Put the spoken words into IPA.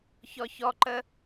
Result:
ç ɔ ç ɔ ǃ ə

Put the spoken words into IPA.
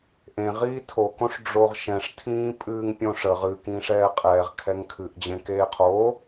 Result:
ʔ ẽ ʁ iː tʰ o k õ ʂ ɖ͡ʐ o ʁ ʃ ɛ̃ ʂ tʰ ĩː pʼ ɨː ŋ pʲ õ ʂ ə ʁ ɨ k ĩː ʂ ɛː qʼ ɛː ʁ kʰ ɛ ŋ kʰ ɨ ʔ d͡ʑ ẽ k eː qʰ o

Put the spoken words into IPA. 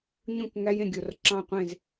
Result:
ɲ ũ˥˨ k ŋ æ˦˥ j ẽ˧˩ ɡʲ o˧˩ r ǁ ɑ̃˥˨ qʷ ẽ˥˨ z

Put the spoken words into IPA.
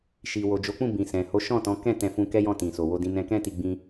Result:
ʃ i˨ w o˨ d͡ʒ o˨˦ k͡p ũ˦˨ b ĩ˨ s ɛ̃˨ h o˨˦ ʃ ɔ̃˦˨ t ɔ̃˨˦ k ɛ̃˦˨ t ɛ̃˧ f ũ˧ k ɛ˦ j ɔ̃˦˨ t ĩ˨ s o˨ w o˧ d ĩ˧ n ɛ̃˧ k ɛ̃˦ t i˧ ɡ͡b ĩ˧

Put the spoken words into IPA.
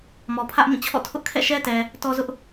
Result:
m ɔ˨ pʰ ä˦ ʔ m ĩ˦˨ t͡ɕʰ ɔ̰˦˨ tʰ ʊ˦ ʔ kʰ ɛ̰˦˨ ʃ ɛ˦ t ɛ˨ | t ɔ˦ z ʊ˦ ʔ

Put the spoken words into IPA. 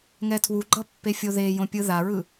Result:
ŋ ɛ tʰ w u ɡ͡ǃ ʌ pː e fʲ o ð e j õ pʲ ɯ ð a ɹ ɯ

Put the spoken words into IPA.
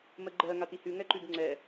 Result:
m ə ɡ͡ǃ ɜ ŋ a t i h ʉ ŋ ɛ ǃ ʉ b ŋ͡ǀ ɛ

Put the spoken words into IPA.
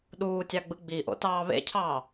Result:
ɗ uː tʲ ɑ ɡ͡b ɯ ɡ͡b i ʔ o̰ t ɑː β ḛ cʰ ɑː

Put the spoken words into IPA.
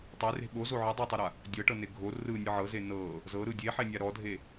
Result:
tˤ e r e̤ ɓ o z o ʕ ɯ dˤ u tˤ o ɾ a | dʲ ɤ ʈ ɤ n e ɡʱ o r ɯ nʲ ɯ ʕ ɤ z e n ɤ | z ɤ ɾ ɯ dʲ e ħ e nʲ a ɾ ɔ dʱ e

